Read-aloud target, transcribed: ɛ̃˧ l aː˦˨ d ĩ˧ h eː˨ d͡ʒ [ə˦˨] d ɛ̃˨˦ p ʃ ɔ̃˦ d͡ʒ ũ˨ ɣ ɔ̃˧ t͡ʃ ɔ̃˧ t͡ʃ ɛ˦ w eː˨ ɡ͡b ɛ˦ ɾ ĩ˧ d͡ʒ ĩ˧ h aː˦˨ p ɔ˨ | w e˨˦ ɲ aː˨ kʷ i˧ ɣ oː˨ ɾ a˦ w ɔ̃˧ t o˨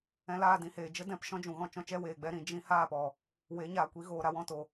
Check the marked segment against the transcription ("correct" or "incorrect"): incorrect